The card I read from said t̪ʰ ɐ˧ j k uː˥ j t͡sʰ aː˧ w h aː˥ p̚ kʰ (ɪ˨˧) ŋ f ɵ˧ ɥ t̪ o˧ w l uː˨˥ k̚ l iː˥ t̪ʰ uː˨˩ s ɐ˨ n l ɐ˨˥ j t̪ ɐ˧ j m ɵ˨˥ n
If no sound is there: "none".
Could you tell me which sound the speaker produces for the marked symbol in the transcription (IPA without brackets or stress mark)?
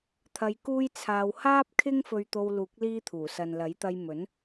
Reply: ɪ˥